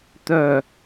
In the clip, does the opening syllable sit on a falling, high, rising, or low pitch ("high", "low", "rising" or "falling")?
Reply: low